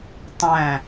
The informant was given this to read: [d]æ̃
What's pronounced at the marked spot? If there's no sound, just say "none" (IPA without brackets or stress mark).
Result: tˤ